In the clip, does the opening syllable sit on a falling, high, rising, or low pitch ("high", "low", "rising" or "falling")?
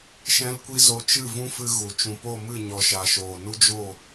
high